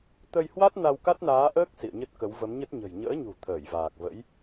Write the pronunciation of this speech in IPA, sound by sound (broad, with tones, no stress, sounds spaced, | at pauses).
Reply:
t̪ ə˧ j h w a˦˥ t̚ n a˧ w k a˦˥ t̚ n aː˨˦ ʔ əː˦˥ k̚ s ḭ˧˨ ə̯ ɲ ə˦˥ t̚ k ə˨˦ w v ə˨˦ m ɲ ə˦˥ t̚ ɲ ə̤˨˩ j ɲ ə̰ː˧˥ ɲ ṳ˨˩ t̪ʰ əː˧˩ j v aː˨˩ k̚ v ə̰˧˥ j